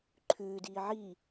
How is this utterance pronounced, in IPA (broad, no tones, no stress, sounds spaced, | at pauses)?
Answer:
ǃʰ ʉː d iː ʕ i